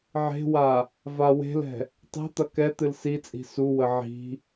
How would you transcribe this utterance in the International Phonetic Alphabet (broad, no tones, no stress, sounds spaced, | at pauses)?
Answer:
ʕ e̤ w a | v a w e̤ l ɛ̤ | tˤ ɛ̤ t̪ ɐ k ɛ t̪ ɨ l s i t͡sʼ i̤ s u w ə ʕ i̤